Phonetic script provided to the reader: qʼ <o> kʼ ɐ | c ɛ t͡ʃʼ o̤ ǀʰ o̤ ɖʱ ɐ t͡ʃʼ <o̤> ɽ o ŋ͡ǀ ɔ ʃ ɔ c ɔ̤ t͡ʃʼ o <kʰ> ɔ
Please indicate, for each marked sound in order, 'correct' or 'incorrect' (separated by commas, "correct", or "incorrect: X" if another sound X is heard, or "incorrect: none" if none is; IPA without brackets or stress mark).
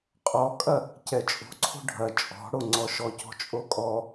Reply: incorrect: ɔ, incorrect: ɔ̤, incorrect: kʼ